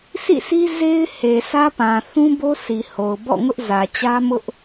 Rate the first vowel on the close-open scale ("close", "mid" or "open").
close